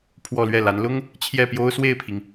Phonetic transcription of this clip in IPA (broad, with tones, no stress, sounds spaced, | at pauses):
pʰ w ɔ˥˧ l ɥ ɛ˥˩ l a˧˥ n l ʊ˥ ŋ | t͡ɕʰ j ɛ˥˩ p j o˥ ʊ̯ s w e˥˩ ɪ̯ pʰ i˩ ŋ